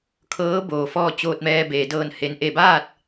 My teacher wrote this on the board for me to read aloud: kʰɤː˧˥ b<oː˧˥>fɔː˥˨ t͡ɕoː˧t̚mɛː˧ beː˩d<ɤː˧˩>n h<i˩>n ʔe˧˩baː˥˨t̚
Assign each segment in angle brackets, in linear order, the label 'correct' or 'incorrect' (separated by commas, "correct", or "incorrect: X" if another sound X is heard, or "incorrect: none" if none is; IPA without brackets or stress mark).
incorrect: oː˩, correct, incorrect: e˩